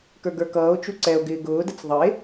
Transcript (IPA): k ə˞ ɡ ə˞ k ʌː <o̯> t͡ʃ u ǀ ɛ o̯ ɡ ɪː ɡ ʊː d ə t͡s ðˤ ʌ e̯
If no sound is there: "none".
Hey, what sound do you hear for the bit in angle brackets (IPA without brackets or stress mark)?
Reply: o̯